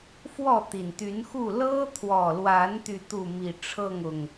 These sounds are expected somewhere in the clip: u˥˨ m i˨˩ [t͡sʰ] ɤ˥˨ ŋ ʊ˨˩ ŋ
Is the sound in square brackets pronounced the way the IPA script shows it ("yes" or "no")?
no